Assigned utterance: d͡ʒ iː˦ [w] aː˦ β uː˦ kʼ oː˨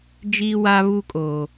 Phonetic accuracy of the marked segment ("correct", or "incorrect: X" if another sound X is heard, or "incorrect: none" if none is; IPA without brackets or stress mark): correct